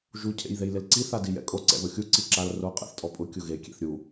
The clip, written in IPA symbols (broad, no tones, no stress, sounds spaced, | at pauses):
ʒ u cʰ ḛ j ð e j l ɪ l ǀ i θ a d i j ɛ̰ kʼ o ǀ ɛ̰ ð o xʲ u ǀ i ǁ a l r o qʼ ɛ̰ θ tʼ ɔ pʼ ʊ kʲ ʊ ɣ e kʲ ḛ θ ɾʲ u